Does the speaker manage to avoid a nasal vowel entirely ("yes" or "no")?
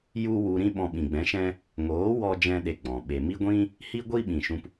no